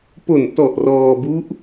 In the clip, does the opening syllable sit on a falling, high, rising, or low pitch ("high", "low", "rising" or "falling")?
low